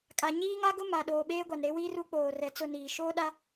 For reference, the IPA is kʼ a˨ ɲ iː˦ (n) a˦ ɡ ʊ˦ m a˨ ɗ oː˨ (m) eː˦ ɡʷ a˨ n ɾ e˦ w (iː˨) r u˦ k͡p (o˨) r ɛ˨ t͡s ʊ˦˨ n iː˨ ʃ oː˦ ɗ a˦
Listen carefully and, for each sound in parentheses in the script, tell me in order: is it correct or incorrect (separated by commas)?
incorrect, incorrect, incorrect, incorrect